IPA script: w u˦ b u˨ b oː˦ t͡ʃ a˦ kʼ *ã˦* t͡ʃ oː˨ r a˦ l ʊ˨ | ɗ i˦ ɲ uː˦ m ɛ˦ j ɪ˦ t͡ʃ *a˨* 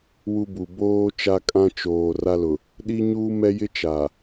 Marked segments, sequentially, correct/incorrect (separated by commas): correct, correct